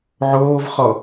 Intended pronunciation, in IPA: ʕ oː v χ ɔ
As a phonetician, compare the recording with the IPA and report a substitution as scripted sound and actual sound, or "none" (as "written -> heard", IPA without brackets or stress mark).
none